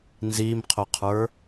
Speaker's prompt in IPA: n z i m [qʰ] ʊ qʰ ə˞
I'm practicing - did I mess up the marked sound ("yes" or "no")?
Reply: no